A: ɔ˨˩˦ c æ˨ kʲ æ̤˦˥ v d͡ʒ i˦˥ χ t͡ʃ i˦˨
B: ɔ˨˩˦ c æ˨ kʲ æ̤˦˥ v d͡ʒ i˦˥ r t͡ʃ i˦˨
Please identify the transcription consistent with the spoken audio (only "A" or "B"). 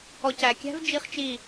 A